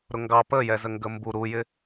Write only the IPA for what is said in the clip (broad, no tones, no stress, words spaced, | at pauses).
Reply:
ɾʊŋɡɑ pəjɛzə ŋɡəmbu ɾujɪ